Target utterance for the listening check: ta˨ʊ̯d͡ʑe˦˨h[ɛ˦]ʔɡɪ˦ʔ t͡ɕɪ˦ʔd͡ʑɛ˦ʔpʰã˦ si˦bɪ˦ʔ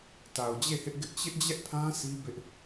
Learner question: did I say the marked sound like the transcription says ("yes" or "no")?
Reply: no